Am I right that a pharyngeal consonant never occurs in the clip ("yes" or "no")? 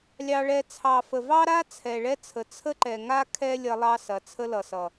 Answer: yes